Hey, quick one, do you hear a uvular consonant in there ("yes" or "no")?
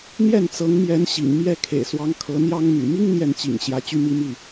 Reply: no